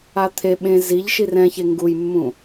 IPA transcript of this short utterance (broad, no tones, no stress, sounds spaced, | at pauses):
a t̪ʰ e ɓ ẽ z i ʎ ʃ i r ɛ̃ ç e ŋ ɡ u j mː ũ